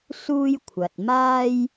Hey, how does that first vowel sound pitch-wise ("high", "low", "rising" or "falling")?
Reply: high